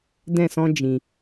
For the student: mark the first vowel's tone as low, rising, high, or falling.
falling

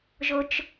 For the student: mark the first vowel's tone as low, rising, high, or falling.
high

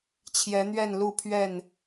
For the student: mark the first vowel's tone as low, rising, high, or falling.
rising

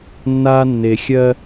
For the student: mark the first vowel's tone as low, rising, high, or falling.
high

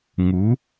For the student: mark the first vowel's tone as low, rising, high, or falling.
rising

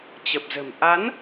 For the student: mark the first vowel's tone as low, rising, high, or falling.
low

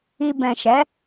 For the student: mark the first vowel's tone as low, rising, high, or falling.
low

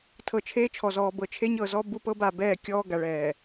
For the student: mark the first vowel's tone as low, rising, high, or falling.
low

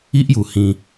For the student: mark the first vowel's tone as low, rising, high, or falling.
high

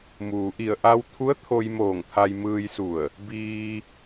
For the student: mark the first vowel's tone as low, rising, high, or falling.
low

